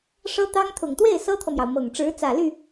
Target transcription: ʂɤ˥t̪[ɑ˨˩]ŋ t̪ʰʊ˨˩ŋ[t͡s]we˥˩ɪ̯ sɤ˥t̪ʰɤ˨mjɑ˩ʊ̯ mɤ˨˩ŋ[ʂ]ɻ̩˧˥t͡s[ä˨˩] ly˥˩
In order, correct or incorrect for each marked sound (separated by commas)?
incorrect, incorrect, incorrect, correct